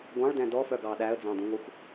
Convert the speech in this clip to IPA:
ɡʷɑ̃ɭdɛ̃ dɔfœɡɑ ɗæə̯d͡zɑ̃dũŋʷɛxʷ

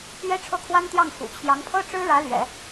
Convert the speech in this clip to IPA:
ɥɛ˥ʈ͡ʂʰɤ˥˩kʰwa˥nt̪jɑ˥˩ŋ xṵ˨˩t͡ɕʰjɑ˧˥ŋpʰɤ˥ ʈ͡ʂɻ̩˥ɻä˧˥lɥɛ̰˨˩˦

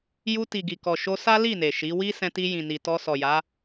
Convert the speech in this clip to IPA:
ju˧ ti˨ɡi˨kɔ˨ ʃo˧sa˦li˦˨ ne˨ʃi˨˦ wi˦sɛ̃˧ti˧ jĩ˨ni˨ tɔ˧sɔ˨ja˨˦

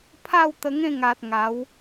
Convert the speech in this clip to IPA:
pʰa˥˧w t̪ə˧ŋẽ˥˧ŋa˨t̚ ŋa˨˦w

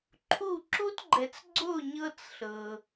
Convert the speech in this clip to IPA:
ǃʰu˦˨ ǁu˦tɡ͡ǃɛ˨t͡sɡ͡ǀo˦˨ ɲɤ˦t͡sɬɤ˨

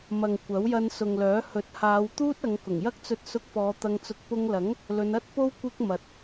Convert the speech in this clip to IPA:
mɐ˨ŋ kʷɐ˨˥wjɐ˧nsʊ˨ŋlœː˨˥ hɵ˨˥t̚haː˨˧w t̪uː˥t̚ɐ˨˧ŋ kʊ˨˩ŋjɐ˥k̚t͡sɵ˧t̚ sʊ˧k̚fɔː˨˧ t̪ɐ˧ŋt͡sʊ˧k̚ pʊ˧ŋlɐ˨˥ŋ | lɵ˨˧nɐ˥t̚po˥w kʷɪ˥k̚mɐ˨˥t̚

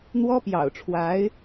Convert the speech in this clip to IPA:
n̪wɔ˥ pjɑ̰˨˩ʊ̯ʈ͡ʂʰwa˧˥ɪ̯

